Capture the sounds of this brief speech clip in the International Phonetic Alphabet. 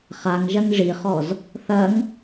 χ a ŋ ʒ ɐ ŋ ʐ i χ ɔ z | θ ɐ ŋ

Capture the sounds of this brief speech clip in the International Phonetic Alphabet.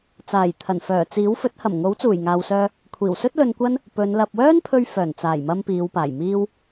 t͡s aː˨˩ j t̪ʰ ɐ˨˩ n f œː˨˩ t͡s iː˨˥ w f ɵ˨˥ t̚ h ɐ˨˩ m ŋ o˨˥ w t͡s uː˨˩ j ŋ aː˨ w s œː˧ | kʷʰ iː˨˩ w s ɵ˥ t̚ l ɵ˧ n kʷ ɐ˥ n | p ɵ˨˧ n l ɐ˨ p̚ w œː˥ n pʰ ɵ˧ ɥ f œː˨˩ n t͡s aː˨˩ j m ɐ˧ m p iː˨˧ w p aː˨˩ j m iː˥ w

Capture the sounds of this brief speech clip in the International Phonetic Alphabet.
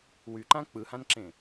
w y ǃ ã k͡p ɯ h ã n ǁ ẽ

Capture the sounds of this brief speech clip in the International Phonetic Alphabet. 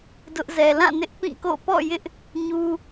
d ʊ˦ ʔ z ɛ˨ l ã˦˨ n ɪ˦ ʔ p ĩ˦˨ k o̰˦˨ p ɔ̰˦˨ j ɪ˦ ʔ | ɲ u˦

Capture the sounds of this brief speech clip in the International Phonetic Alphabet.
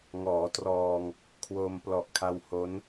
ŋ ɔː˩˦ t r ɔː˧ ŋ | kʰ w o˧ m p l ɔ˨˩ ʔ kʰ a˧ w h o˦˥ n

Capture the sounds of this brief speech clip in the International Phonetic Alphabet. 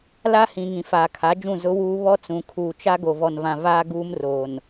l a˦ h ĩ˨ ŋ ĩ˨ f aː˨ kʰ a˨˦ d͡ʒ ũ˦˨ z ʊ˦ w uː˦ β ɔ˦ t͡s ũ˨ kʰ uː˨ t͡ʃ a˦ ɡ o˨ v ɔ˨ n v ã˨ v aː˦ ɡ uː˦ m r oː˨ n

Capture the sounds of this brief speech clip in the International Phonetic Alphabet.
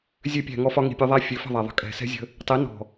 zʲ ø˧ pʲ æ̤˨ ŋ ɔ˧ f ɒ˧ ŋ i̤˨ pʲ ɒ˧ ðˤ æ˦ fʲ ø˨˦ f ə̤˦˨ ðˤ æ˨ ðˤ ə̤˧ kʼ ɛ̤˨ s ɛ̤˦ zʲ ə̤˧ | tˤ i˨˦ n ɔ̤˨

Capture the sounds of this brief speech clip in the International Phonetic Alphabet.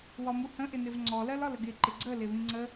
w ɒ m u h ə̃ ʔ ɪ n ɪ v ŋ͡ǀ ɔ l ɜ l ɒ l ə ɡ ɪ ǃ ɪ ɡ͡ǀ ə l ɪ β ĩ ŋ͡ǀ ə

